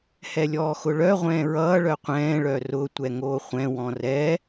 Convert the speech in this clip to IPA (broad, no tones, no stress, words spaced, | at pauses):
hɛlʲɔːxʊɭœ ʁʷɛ̃ːɹʌː ɭœqʷɛ̃ː ɭœrʊ tʷɛŋoːχʷɛ̃ wɔ̃rɛ